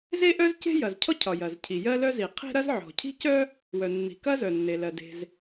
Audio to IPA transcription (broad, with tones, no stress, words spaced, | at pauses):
ze˥ʔœ˥zce̤˥ jɐ˩zcʰɔ˥cʰɒ˩ jɐ˩zcʰi˩ jɜ˥lœ˥zi˩ qʰe̤˥ɾɐ˥z ʕɔ̤˩cʰi̤˥cœ˥ | wœ˩nːi̤˩kɐ˥ zœ˩nːe˩lɜ˩ de̤˩z